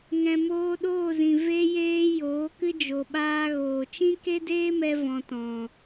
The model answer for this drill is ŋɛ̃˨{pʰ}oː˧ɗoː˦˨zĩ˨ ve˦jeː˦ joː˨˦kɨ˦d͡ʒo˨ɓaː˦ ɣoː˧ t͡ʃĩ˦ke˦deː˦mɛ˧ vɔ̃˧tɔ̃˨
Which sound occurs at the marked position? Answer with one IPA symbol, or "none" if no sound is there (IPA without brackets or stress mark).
m